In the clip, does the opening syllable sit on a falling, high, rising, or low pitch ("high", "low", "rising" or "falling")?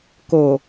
low